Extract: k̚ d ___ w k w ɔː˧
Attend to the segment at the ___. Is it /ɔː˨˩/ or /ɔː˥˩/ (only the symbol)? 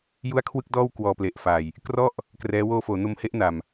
ɔː˥˩